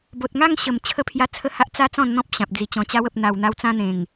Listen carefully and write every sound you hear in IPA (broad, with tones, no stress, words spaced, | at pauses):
bo˨t̚ŋa˥˧ŋ ɕə˨˩m t͡ɕʰə˧pʰja˧ t͡sʰə˥˧ha˦ʔ t͡sa˦ t͡sɔ̃˥˧nn̪ɔ̃˦p̚ ɕã˨p̚d͡zi˧t͡ɕɔ̃˧ t͡ɕa˧wə˨p̚n̪a˨˩w n̪a˧wt͡sã˧n̪ẽ˨˩ŋ